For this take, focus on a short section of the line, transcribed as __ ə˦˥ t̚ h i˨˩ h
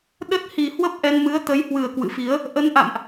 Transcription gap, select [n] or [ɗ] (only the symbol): ɗ